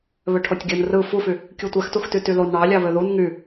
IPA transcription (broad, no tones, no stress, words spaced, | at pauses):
βøʈʰotʲɡʲɯn rɯ fufy | kʲutʷæxtuxty tylon ɳɑlʲɑβø ðun ŋy